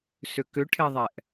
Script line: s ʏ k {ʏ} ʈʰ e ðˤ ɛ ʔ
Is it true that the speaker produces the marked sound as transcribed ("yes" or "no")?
yes